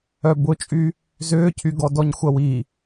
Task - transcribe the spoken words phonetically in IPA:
œbʊt͡ʃʼy | zʏːcʰyɡɔ dɔɲxʷɐwi

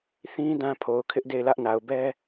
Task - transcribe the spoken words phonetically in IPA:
θĩ˦ dã˦pʰo˨ʊ̯kʰɪ˦ʔ de˦˨ɪ̯lä˦ʔna˨ʊ̯ bɛ˦

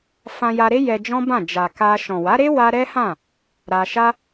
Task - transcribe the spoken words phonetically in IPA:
fã˧ja˧ɾe˦ jɛ˧d͡ʒɔ̃˦bã˦˨ d͡ʒa˨ ka˧ ʃɔ̃˨wa˨˦ɾe˦ wa˦ ɾɛ˦hã˦˨ | ɾa˧ʃa˦

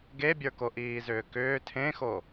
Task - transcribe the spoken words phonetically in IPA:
ɡebʲə˞ko ʔiːzʏːkʏː tʰẽxo

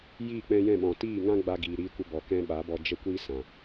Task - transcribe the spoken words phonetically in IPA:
jiː˦˨k͡pɛ̃˧jɛ̃˦˨ɓɔ̃˨ tiː˦˨ŋã˦ɡ͡ba˧ ɡiː˨ɾiː˧kʷə˧bɔ˨ kɛ̃˧ ɓa˨˦bɔ˧ d͡ʒə˦kʷi˦sã˨

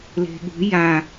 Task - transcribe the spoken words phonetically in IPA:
le̤ɠṳ ja

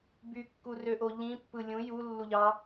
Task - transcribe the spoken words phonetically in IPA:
bykːurøʔo ʎĩpːɯ lʲũ julːuʎɑ

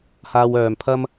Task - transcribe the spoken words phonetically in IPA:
haː˧wœː˨mpʰɐ˥m

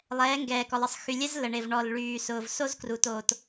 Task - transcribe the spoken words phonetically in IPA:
lˠɛː˨˦ŋɡɛː˨kɔ˨lˠə˨sˤ xy˨lʲɛ˦z lə˨ɳe˨vɳɔ˨l ɭyː˨sʊː˨v so˦zkru˨to˨t

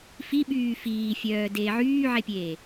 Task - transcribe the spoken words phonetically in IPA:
fiɓyː fiːfʲœːdeː ʕyːʕepʲe

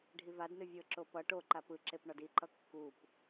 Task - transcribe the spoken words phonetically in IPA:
ɖʱivadnɨ vʲɤǁo pʌ ʈoǃa pɯǁep ɳɔdiǃʌ kːup

